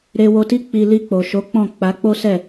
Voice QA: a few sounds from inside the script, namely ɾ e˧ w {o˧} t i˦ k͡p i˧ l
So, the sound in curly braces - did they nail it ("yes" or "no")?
yes